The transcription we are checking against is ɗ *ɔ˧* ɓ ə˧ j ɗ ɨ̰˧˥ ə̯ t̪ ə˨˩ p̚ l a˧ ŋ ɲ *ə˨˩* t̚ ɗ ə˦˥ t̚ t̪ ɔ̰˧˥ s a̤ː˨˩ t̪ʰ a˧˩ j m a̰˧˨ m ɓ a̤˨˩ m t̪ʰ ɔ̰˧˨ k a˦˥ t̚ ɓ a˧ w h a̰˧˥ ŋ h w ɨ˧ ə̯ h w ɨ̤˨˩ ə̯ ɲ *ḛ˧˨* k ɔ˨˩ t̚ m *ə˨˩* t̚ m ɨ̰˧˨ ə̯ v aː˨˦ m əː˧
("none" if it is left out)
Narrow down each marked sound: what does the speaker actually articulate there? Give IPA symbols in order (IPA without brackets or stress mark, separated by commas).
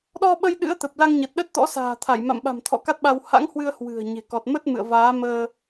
ɔ˧, ə˨˩, e̤˨˩, ə˦˥